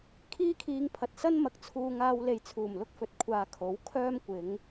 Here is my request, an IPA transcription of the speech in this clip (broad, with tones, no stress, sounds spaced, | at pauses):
kʰ iː˥ kʰ iː˧ ŋ pʰ ɐ˨ t̚ s ɐ˥ n m ɐ˨ k̚ t͡sʰ uː˧ ŋ aː˧ w l e˨ j t͡sʰ uː˨˩ m l ʊ˥ k̚ f ɵ˨ t̚ kʷʰ aː˨ kʰ o˨˥ w kʰ œː˥ m kʷ ɪ˨˥ ŋ